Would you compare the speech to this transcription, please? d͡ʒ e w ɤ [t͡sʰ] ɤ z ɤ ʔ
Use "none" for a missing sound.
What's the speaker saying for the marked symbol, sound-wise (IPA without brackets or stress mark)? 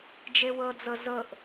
d͡z